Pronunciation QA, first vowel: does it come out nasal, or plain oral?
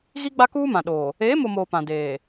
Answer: oral